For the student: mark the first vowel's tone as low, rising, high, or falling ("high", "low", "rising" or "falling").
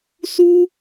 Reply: high